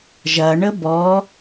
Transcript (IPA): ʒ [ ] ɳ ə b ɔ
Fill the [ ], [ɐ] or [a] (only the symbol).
ɐ